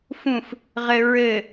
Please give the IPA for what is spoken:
f ũ f | ʁ ɘ ɹ ɘ

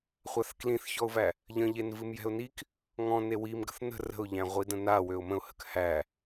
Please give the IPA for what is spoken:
χʷ a θ k l ĩ θ ç ɔ ʊ̯ v æ | ʎ ə̃ ʎ e n v ɨ m j ɛ̤ ʊ̯ n i k | ŋ ɔ̃ n e w i m ɡ ə̤ θ n ə̤ r ə̤ ʊ̯ ʎ æ̃ ʁʷ i d ə̃ n a w ø ʊ̯ m ə̃ ʊ̯ h ə̤ k h æ

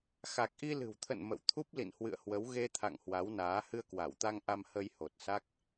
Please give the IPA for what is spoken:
x a˨˩ k̚ ʔ i˧ l ɨ̤˨˩ w t̪ʰ ə̰˧˨ n m ə̰˧˨ w t̪ʰ u˦˥ p̚ l ḭ˧˨ n h w ɨ̰˧˨ ə̯ h w ə˨˦ w ɣ e˧ t̪ʰ a̰˧˨ ŋ h w a˨˦ w n aː˨˦ h ɨ˧ ə̯ k w a˧˩ w t̪ a˧ ŋ ʔ a˧ m h ə˧ j h o˨˩ t̚ s a˦˥ k̚

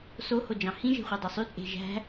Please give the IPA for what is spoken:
s o h o d͡ʒ ɑ̃ h ĩ ʒ e̤ χʷ e dˤ ø sˤ y t͡sʼ e̤ ʒ æ̤

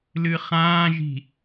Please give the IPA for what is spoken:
l ɨ χ ãː ʒ i̤

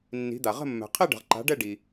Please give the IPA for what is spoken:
nː i̤˩˥ d̪ a˩ ʁ ə̤˥˨ mː ɛ̤˩ qʰ i˥˨ ɖ ə̤˩ ʁ ǃ a̤˩˥ ɖ ɛ˥˨ ɖ i˩

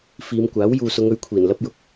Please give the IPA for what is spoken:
f iː˨˧ m kʷ aː˨˥ w j uː˨ s ʊ˨˧ ŋ ɵ˨˥ ɥ kʷʰ iː˨˩ n l ɐ˥ p̚ j ʊ˧ k̚

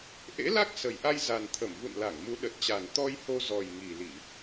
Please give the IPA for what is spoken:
ʔ ḛ˧˥ l a˦˥ k̚ s ə˨˩ j ʔ a˧ j z a˨˩ n t̪ʰ ə˧˩ m v ṵ˧˨ n l a˧˩ ŋ m u˨˦ ɗ ə˨˩ t̚ t͡ɕ a˨˩ n t̪ ɔ˧ j h o˧ z ɔ˨˩ j ŋ i˨˩ l i˧˩˨

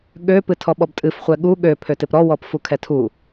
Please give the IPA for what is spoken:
ɠ ø p ɨ tʰ ɔ ɓ ɔ b tʼ ɨ f χʷ ɛ ɠ u ɠ ø pʰ ø t ɪ p ɾ ɔ w ɔ p f u kʰ ɛ tʰ u

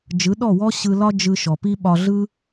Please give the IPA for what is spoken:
d͡ʒ ɯ˨˦ ɗ ɔ˦˨ w ɔ˦ ɕ ɯ˧ l ɒ˦ d͡ʒ ɯ˧ ʃ ɔ˨ p i˦ ɓ ɒ˧ ɮ ɯ˦

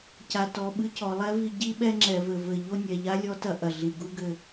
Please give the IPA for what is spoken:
c a˨ t ɔ˨ ɓ ɨ˦ c ɔ˨ lˠ ɛ˦ v i˧ ɟ i˦ ɓ ɛ˦ ŋ͡ǁ ɛ˨ v ɘ˨ v ɘ˨ ʎ o˦ nʲ ɛ˨ ʎ a˦ lʲ ɔ˦ t ɐ˧ ʔ ɐ˨ ɮ i˨ ɡ u˦ ɡ ɘ˦˨

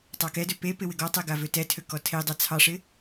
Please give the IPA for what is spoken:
tˤ ɑ k ɛ d ø p e p ɪ w ɪ ɡ ɔ tˤ ɛ ɡ a v ø t ɛ tʰ ø k ɔ tʰ e dˤ a t͡sʰ ɑ ʂ ɪ

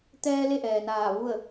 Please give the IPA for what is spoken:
t̪ ɛː˧ l e˥˨ ʔ ɛː˩ n aː˧˩ ʋ u˥˨ ə̯

